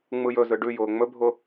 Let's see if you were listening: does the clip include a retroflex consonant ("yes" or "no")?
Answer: yes